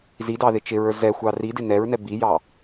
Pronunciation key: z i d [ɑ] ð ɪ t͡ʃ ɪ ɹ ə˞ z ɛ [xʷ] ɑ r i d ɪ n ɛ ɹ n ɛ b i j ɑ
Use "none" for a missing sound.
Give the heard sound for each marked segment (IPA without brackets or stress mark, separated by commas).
ɑ, xʷ